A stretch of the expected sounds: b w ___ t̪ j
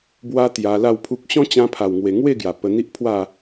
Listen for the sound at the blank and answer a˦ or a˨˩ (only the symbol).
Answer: a˦